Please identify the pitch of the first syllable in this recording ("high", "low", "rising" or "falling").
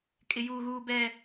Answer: low